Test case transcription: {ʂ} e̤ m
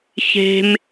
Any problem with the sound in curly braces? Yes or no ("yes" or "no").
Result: yes